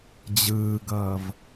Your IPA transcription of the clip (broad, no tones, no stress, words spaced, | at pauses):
d͡ʑɯːɡʌːv